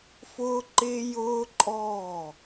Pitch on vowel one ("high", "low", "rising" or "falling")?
high